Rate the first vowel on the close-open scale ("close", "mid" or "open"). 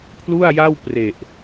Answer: close